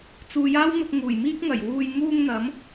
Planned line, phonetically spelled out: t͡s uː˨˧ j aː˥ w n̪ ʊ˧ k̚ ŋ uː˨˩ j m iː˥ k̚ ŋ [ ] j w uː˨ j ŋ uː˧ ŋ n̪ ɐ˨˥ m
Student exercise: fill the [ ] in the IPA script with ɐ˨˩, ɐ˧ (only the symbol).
ɐ˨˩